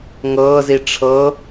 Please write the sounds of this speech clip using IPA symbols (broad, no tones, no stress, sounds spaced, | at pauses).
ŋ ɤː z i ʈ͡ʂʰ ɤ